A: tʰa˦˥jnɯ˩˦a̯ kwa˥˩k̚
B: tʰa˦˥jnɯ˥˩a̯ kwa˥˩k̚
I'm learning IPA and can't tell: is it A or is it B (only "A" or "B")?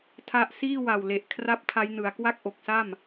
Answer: A